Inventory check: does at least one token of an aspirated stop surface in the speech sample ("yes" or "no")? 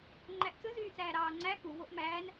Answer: no